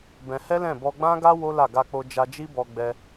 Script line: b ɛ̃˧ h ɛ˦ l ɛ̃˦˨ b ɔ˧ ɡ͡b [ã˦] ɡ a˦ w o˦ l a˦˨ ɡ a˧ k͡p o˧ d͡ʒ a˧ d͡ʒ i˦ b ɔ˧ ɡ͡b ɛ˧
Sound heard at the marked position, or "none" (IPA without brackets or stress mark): ã˦